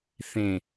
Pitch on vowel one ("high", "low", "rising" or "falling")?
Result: falling